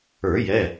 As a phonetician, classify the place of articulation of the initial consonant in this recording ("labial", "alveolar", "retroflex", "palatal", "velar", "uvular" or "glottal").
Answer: palatal